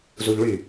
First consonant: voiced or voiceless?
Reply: voiced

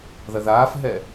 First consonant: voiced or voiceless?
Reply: voiced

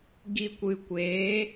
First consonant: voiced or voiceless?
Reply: voiced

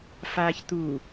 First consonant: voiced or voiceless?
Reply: voiceless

